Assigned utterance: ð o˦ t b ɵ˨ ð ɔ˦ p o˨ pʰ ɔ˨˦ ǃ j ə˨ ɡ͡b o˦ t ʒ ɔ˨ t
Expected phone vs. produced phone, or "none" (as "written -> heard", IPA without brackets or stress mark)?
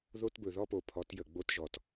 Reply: ǃ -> t